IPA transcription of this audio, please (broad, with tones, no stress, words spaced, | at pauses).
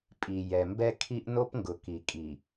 pʼi˨jɛ˨ mbɛ˦kʰi˦ʔ no˦pŋɡʊ˨ ki˨kʼi˨